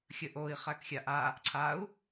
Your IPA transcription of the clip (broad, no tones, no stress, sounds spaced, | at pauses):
xʲ ə ʔ o i̯ χ æ k xʲ a ʔ a | ǀʰ a u̯